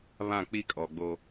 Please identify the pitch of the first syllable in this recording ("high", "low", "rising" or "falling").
falling